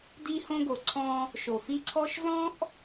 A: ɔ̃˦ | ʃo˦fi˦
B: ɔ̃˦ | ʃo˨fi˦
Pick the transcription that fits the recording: B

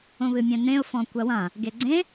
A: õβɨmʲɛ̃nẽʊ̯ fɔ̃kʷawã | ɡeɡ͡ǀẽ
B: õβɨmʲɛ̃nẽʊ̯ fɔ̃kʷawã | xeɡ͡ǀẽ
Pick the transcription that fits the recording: A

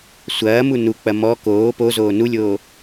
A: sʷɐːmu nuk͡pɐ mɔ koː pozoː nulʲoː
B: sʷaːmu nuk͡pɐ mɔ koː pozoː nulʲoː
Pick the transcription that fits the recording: A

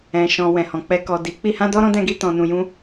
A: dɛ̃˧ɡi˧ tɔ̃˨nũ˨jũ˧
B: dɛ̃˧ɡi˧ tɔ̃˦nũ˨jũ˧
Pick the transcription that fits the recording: A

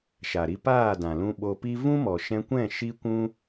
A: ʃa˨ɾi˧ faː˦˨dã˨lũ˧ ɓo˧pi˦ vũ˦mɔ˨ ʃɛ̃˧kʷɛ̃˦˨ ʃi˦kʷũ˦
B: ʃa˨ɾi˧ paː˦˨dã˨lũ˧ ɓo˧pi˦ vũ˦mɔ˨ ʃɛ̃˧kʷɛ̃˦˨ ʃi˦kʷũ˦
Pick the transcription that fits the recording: B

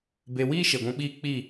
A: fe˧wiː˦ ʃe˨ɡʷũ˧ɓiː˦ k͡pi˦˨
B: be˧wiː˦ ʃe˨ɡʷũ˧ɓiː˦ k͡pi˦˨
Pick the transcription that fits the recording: B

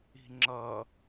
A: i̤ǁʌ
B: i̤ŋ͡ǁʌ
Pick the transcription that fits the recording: B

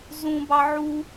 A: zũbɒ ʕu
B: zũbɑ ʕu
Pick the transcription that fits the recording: B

